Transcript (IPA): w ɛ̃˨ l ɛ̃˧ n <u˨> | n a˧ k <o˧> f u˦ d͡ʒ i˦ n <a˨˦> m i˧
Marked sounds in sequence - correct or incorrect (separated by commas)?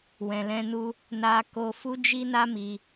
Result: incorrect, correct, incorrect